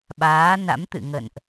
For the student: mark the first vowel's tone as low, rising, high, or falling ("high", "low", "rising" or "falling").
rising